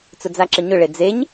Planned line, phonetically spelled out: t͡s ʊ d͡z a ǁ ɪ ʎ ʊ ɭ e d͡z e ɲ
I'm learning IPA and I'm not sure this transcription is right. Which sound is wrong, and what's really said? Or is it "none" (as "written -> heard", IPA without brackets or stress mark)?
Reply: ʎ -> ɲ